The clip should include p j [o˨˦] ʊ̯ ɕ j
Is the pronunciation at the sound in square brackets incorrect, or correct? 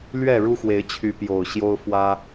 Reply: incorrect